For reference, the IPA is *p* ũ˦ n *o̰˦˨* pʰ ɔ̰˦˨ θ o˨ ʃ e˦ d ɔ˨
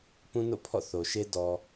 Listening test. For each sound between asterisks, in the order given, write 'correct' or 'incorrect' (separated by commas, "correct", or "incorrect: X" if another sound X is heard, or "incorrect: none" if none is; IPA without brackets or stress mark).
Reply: correct, correct